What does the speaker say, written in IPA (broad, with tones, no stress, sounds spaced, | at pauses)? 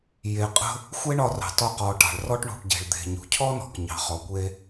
j e˩ qʼ ə̤˧ | xʷ e˥ ɳ ɒ˧ r ɑ̤˩ t ɒ˧ q ɔ˩ ʈ ɑ̤˩ ɭ r ɔ˥ ʈ ɳ ṳ˩ ʈ ɟ e̤˩ ɭ d̪ e̤˩ ɲ ṳ˩ cʰ ɔ˥ n ɔ̤˩ k ɲ ɑ̤˩ χ ɔ˩ kʷ e˧